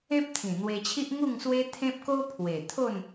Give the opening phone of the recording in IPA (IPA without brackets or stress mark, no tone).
ẽ